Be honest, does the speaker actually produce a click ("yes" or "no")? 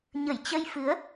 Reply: no